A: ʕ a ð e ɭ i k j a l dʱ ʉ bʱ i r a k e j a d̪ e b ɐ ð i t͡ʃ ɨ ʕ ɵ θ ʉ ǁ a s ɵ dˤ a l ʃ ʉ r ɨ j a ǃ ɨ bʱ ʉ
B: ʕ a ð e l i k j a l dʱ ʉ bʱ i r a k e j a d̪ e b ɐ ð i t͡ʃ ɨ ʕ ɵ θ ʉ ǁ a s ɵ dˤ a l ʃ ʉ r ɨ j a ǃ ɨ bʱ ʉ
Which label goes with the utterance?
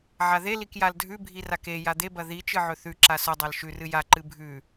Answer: B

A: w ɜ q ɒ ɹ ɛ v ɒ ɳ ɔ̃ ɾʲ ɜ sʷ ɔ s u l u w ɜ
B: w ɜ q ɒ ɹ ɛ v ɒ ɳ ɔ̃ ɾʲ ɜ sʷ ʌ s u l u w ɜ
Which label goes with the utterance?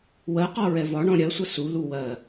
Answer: B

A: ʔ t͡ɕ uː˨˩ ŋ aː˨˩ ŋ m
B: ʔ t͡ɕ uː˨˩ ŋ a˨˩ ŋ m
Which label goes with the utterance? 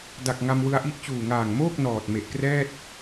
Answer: A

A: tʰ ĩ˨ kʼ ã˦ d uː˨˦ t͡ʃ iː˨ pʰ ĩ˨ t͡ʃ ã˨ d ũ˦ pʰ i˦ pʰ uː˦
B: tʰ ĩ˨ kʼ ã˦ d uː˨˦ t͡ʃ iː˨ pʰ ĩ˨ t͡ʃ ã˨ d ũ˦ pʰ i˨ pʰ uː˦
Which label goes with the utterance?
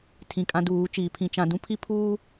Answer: A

